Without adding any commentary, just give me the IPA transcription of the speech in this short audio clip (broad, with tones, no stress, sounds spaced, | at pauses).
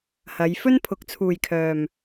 h ɐ˨˧ j f ɵ˥ n pʰ ʊ˨˥ k̚ t͡sʰ uː˨ j kʰ œː˨ m